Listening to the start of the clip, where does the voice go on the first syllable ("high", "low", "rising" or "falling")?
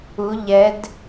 rising